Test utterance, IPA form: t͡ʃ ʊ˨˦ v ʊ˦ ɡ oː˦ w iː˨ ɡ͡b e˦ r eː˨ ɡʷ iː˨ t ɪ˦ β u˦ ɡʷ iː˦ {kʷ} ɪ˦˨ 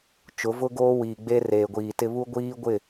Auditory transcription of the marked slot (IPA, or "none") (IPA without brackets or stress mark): ɡʷ